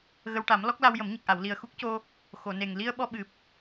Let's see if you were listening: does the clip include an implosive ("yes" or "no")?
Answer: yes